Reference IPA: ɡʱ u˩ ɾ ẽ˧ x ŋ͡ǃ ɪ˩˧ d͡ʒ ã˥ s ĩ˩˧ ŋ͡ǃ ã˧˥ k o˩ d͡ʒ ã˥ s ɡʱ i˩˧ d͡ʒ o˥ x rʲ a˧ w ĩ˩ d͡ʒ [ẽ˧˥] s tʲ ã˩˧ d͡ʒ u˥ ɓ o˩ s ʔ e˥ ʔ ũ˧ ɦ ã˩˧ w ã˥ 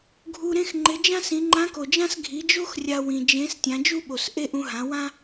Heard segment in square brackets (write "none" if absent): ẽ˧˥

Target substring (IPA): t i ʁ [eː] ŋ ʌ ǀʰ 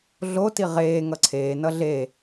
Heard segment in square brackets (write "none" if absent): eː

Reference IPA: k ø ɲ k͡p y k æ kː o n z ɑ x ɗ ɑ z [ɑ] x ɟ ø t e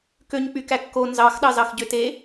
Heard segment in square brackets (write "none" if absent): ɑ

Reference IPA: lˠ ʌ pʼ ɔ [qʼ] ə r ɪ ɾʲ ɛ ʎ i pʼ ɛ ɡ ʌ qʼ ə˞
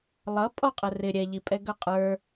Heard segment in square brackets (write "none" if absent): qʼ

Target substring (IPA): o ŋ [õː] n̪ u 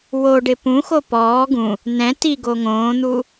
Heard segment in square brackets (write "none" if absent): õː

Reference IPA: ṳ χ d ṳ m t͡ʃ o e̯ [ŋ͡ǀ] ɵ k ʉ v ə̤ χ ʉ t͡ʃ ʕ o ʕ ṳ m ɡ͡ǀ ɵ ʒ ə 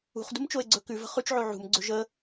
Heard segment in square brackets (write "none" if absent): ɡ͡ǀ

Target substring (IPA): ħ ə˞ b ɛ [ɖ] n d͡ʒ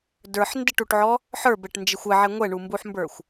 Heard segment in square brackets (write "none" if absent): ʈ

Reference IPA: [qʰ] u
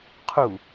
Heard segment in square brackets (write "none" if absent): qʰ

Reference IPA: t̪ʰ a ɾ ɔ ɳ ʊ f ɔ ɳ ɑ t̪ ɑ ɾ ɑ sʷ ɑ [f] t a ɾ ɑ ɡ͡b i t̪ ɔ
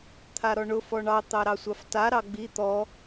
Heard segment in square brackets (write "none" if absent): f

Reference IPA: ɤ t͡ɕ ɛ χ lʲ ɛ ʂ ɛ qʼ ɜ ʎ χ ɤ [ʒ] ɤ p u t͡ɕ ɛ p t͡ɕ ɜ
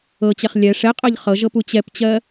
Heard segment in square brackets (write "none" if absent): ʒ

